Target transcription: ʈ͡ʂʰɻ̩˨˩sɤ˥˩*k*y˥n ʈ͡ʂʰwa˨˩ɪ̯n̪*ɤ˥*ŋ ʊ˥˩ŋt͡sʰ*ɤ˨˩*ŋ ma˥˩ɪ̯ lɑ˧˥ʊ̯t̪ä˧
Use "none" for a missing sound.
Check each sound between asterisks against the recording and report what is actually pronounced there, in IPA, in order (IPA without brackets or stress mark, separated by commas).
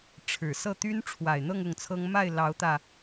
t̪, ɤ˥˧, ɤ˥